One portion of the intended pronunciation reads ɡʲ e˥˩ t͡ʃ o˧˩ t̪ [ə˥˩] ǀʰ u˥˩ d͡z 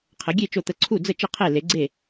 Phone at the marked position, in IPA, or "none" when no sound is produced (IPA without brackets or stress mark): ə˧˩